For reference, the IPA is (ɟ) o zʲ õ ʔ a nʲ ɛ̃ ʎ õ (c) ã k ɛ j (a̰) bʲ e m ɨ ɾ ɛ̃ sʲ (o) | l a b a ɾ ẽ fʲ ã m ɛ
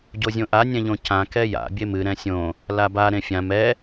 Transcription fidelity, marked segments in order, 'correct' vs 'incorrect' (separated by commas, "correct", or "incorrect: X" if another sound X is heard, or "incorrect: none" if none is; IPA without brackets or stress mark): correct, correct, correct, incorrect: õ